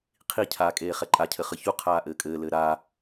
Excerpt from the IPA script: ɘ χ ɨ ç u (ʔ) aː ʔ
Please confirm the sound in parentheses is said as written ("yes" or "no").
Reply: no